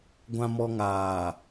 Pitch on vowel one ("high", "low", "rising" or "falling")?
low